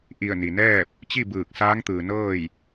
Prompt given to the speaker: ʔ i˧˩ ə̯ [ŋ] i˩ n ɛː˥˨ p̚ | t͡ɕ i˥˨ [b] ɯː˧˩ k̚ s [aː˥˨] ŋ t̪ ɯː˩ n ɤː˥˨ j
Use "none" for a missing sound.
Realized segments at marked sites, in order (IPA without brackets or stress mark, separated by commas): n, b, aː˧˥